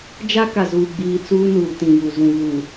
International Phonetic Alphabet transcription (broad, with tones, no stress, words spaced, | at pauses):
d͡ʒa˦ka˨zuː˨ɡ͡biː˨ t͡suː˦nuː˨ tĩ˨ju˨ zũ˨ vuː˨